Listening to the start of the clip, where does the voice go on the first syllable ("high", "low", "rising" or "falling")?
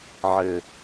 low